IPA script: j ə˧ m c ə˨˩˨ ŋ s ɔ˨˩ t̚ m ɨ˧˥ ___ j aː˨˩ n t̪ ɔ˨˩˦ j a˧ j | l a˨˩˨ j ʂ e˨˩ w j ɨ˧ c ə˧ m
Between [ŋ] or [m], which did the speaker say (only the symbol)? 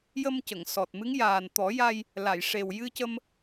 ŋ